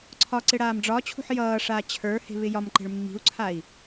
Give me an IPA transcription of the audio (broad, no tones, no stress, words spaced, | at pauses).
ǀʰɒǀɪ ɽaːmɖ͡ʐɒt͡ɕʰṳħ jʌːʂaː t͡ɕʰə˞he̤ βɪjɒmǃe̤ɭ mːi̤u̯ǀʰai̯